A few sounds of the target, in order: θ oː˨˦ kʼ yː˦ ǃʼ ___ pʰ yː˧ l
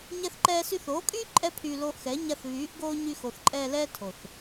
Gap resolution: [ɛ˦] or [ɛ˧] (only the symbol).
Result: ɛ˦